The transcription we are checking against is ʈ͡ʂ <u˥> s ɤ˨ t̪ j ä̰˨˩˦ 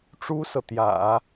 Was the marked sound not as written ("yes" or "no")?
no